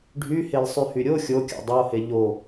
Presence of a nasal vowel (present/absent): absent